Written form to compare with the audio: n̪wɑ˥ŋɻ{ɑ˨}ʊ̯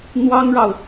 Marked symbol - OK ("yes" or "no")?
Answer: yes